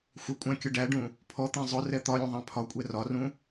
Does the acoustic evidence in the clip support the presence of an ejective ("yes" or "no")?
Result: yes